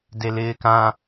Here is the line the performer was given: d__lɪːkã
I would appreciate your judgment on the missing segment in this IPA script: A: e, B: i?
A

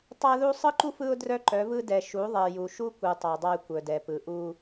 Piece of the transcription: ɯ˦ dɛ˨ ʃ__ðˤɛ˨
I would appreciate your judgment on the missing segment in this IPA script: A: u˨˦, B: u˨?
A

